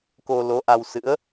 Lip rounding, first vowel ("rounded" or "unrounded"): rounded